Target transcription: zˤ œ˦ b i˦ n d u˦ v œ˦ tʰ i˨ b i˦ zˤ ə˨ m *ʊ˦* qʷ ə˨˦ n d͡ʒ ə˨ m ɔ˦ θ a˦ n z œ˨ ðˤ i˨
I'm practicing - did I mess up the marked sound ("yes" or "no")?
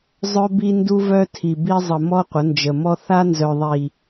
yes